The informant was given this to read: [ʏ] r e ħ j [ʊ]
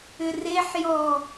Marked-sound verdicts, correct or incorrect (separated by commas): correct, incorrect